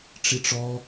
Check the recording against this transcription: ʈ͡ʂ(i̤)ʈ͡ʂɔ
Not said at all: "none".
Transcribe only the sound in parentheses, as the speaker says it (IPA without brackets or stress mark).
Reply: i